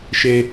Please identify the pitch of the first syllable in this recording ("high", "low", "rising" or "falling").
high